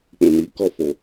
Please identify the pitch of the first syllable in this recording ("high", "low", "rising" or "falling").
low